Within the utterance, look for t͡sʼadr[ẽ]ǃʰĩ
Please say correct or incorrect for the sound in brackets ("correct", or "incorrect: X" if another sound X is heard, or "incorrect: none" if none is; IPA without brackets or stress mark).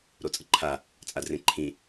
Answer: correct